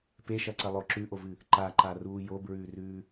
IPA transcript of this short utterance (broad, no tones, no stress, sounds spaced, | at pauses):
p e ʃ ɐ ǀ ɐ lˠ o ǁ ʉ ʔ o v ɨ | ǃ a ǃ a r uː j o b ɹ ʉː r ʉː